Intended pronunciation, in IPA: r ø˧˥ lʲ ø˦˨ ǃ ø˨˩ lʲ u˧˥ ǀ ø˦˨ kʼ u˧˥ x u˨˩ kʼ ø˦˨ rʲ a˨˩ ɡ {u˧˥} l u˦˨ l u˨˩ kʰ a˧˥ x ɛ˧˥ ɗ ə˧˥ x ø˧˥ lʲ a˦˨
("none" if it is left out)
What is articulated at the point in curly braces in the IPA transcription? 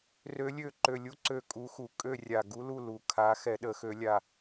u˧˥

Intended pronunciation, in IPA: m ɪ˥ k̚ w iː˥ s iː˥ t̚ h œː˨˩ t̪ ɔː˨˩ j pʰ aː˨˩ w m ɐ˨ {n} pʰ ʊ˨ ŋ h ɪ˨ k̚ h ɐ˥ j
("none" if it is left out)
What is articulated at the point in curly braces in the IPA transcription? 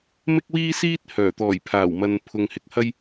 n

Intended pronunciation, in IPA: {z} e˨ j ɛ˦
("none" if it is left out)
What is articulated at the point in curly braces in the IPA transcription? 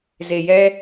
z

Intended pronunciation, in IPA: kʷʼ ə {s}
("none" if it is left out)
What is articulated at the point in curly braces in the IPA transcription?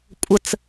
t͡s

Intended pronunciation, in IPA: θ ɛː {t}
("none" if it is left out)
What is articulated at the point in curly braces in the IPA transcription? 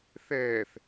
θ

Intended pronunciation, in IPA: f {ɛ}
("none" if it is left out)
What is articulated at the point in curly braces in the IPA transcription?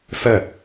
ɛ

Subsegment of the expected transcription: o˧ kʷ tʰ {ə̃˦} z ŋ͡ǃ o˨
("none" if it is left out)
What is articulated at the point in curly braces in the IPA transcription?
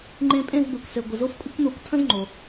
ə̃˦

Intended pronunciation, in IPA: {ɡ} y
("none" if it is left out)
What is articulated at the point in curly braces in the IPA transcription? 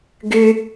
ɡ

